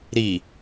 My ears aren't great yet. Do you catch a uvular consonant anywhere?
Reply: no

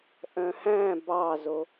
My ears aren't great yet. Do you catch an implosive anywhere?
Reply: no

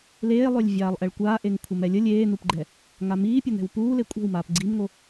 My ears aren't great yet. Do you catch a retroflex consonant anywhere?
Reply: yes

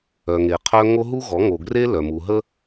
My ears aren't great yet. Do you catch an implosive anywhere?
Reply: no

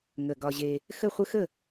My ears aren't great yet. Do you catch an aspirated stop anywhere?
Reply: no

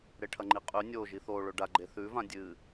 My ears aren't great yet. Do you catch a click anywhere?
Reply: yes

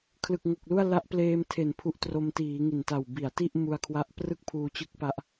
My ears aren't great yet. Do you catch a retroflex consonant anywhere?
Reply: no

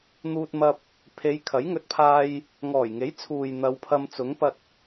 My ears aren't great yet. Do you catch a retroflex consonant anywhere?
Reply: no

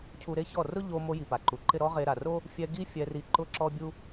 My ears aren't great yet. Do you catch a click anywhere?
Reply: yes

